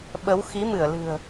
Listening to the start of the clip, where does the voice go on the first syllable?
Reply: rising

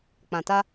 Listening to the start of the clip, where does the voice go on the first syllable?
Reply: low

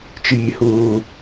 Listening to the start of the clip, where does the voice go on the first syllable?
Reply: high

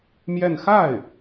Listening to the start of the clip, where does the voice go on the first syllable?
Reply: falling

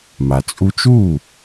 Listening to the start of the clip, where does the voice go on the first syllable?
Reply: low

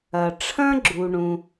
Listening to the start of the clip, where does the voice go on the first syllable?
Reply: low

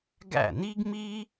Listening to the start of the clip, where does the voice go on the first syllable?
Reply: falling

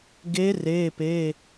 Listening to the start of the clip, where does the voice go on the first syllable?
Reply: rising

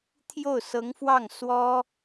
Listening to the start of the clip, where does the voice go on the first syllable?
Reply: falling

